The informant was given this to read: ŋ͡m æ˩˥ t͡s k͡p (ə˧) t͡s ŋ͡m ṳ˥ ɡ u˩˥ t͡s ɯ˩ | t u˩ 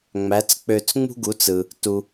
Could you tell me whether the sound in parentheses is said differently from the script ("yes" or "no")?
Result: yes